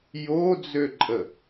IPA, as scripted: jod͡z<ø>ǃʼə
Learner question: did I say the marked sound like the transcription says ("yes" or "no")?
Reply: yes